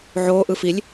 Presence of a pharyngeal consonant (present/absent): present